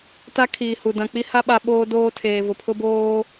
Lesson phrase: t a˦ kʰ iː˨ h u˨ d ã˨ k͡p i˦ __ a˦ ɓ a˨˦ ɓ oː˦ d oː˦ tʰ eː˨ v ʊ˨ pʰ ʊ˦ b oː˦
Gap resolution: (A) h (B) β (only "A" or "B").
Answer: A